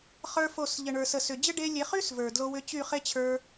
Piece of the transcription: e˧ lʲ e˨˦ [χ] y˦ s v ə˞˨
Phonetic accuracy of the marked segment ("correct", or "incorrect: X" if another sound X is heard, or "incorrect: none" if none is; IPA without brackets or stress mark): correct